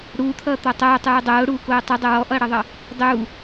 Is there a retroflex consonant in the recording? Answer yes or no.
yes